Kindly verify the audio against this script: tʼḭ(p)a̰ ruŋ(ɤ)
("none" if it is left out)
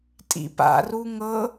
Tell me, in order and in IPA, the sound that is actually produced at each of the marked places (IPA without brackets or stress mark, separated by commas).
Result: p, ɤ